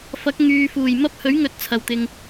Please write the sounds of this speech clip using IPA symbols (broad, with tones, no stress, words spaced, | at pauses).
fɐ˨˥k̚ ŋyː˨ fuː˨˩jmɐ˥p̚hɵ˨˥ɥŋɵ˨t̚ t͡sʰɐ˨wt̪ɪ˨ŋ